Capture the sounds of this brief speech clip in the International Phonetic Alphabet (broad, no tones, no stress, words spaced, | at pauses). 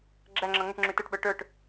ɡ͡ǁæŋ͡ǁʌ ŋəʈŋ͡ǁʉ tə˞ʈɓə˞ ʈə˞ʈ